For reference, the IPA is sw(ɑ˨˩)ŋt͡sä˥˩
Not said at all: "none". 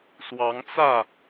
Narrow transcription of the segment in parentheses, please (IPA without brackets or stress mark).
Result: ɑ˧˥